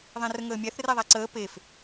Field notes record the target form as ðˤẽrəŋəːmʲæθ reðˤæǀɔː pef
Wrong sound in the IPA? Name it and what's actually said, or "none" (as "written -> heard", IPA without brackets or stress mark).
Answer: ɔː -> əː